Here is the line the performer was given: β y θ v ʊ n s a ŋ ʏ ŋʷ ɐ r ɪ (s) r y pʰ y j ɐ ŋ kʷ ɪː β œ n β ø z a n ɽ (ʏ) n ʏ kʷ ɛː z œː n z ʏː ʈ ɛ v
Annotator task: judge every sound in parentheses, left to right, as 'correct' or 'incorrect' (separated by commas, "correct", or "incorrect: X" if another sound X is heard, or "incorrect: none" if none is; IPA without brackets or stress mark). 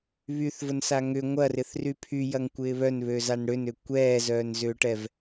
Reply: incorrect: θ, correct